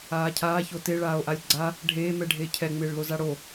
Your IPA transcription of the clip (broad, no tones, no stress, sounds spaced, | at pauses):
aː cʰ aː ç o t e ɭ aː o̯ ʔ a lʲ ɡ͡ǀ a | ɖʱ eː m ɛ ɖʱ eː cʰ ɛ ŋ͡m ɪː ɭ l o z a ɽ o